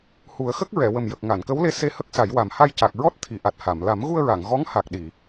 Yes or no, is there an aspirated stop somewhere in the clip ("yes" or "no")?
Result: yes